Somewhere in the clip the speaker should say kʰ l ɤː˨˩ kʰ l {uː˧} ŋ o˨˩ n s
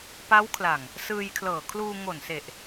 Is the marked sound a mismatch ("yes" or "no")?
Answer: no